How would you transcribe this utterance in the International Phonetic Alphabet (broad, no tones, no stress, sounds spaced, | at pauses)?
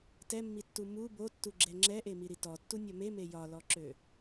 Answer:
t ɛ mː i tː u m u b o tː u ɡ͡ǁ ɛ ŋ͡ǁ ɛ ʔ e m i ɾ i t ɔ tː u nʲ ɒ m e m e j ɒ l ɔ ǁ ø